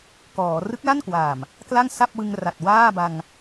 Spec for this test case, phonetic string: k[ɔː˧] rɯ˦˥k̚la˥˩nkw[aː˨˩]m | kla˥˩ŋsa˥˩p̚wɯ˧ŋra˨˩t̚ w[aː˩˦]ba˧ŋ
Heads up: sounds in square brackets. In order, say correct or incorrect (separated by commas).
incorrect, correct, incorrect